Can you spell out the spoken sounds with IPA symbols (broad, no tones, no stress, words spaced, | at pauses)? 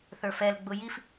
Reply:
θə˞fɛl ɡ͡bʊjif